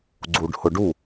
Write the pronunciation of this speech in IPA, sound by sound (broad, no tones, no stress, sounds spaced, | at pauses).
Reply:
ɡ͡ǀ u ɖ h ʊ ɖ u